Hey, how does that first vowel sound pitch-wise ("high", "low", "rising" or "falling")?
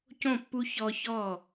falling